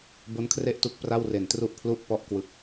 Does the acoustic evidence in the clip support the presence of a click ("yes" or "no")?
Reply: no